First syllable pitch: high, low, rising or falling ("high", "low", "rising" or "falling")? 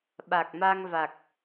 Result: low